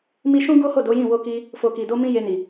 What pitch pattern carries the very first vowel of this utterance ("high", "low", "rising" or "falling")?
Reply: high